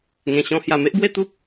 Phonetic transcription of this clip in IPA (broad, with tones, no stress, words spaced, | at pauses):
ŋẽ˨˩ɕɔ̃˧ hja˨˩me˦ʔbwe˥˧t̪u˦p̚